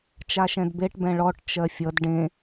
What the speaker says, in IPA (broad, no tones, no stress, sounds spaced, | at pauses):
t͡ʃ a ʃ ɛ̃ d b e ʈ b ɛ̃ ɭ ɔ ʈ t͡ʃ ɜ fʲ ʌ d ɖ ẽ